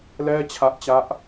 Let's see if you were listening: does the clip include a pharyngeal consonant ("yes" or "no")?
no